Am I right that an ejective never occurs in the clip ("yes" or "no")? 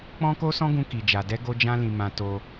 yes